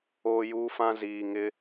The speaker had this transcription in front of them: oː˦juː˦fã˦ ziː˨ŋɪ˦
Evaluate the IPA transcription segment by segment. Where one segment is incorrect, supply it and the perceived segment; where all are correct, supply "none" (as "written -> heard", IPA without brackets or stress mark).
none